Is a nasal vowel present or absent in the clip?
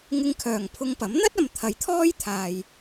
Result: absent